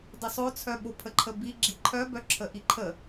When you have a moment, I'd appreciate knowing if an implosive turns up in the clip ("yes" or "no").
yes